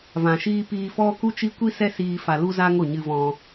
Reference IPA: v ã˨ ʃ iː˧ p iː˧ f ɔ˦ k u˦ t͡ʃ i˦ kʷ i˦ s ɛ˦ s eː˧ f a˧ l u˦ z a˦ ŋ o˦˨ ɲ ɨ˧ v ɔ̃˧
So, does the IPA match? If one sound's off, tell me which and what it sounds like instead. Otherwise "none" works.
eː˧ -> iː˧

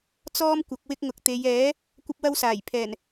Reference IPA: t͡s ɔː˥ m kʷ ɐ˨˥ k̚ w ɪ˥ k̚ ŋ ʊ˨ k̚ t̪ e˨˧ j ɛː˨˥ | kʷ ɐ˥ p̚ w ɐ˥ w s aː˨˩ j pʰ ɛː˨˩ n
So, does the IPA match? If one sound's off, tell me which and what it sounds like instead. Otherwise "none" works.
none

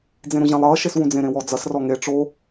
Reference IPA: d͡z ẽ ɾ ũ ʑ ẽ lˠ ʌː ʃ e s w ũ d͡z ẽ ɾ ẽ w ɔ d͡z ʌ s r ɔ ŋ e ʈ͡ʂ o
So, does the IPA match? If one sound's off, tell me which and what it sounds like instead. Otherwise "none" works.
none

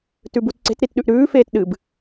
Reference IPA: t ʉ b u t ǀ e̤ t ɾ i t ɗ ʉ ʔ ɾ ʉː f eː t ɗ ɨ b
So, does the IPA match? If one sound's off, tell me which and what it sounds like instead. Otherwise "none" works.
none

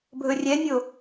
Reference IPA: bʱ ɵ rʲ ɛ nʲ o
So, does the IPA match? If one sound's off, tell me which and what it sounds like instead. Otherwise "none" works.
none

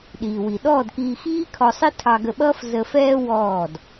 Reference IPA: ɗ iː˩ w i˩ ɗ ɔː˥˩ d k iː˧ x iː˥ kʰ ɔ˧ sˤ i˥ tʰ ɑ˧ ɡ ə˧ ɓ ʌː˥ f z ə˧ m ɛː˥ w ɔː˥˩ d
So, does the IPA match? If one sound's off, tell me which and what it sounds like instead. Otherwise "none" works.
m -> f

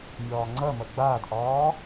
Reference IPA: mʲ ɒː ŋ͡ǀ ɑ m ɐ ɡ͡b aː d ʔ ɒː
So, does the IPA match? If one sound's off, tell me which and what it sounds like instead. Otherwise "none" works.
ɑ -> ɐ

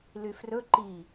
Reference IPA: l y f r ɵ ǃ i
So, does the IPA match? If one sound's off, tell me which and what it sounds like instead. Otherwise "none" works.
none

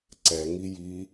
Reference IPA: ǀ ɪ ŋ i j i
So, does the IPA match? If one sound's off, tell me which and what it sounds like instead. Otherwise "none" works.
ɪ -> ɛ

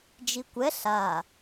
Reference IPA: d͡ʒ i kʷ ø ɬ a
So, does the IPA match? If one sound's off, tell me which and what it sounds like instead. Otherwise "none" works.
ø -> ɛ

